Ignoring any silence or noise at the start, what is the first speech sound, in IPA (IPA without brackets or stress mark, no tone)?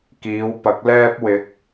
k